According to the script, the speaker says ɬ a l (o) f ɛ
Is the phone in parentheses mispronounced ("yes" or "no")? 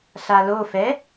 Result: no